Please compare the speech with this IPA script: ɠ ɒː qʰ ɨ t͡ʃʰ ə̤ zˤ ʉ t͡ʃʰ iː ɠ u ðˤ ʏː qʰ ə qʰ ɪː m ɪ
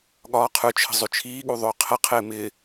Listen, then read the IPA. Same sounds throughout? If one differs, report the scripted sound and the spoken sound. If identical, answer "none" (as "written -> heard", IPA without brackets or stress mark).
ɨ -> ʉ